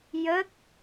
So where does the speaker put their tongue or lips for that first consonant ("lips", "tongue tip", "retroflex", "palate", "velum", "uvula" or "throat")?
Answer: palate